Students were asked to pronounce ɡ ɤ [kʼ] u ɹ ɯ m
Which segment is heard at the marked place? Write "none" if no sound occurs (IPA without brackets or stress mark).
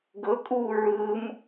kʼ